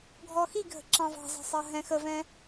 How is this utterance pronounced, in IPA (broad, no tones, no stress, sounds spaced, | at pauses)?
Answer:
ɡʱ ɔ x i ɡʱ ə̤ ǁ ɑ̃ v ɑ̤ z ɑ̤ sˤ ɑ ɦ ɛ̃ x ə v ɛ̃